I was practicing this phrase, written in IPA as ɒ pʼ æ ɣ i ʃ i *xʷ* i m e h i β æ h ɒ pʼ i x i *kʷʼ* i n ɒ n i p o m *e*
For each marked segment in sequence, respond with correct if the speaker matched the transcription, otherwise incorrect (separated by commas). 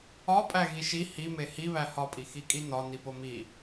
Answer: incorrect, incorrect, incorrect